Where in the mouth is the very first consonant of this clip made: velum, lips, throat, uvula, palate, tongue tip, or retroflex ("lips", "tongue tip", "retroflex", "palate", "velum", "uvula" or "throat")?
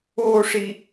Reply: retroflex